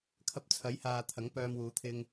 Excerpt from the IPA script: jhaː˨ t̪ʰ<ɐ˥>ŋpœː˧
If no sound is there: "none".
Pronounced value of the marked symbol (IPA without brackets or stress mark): ɐ˨˥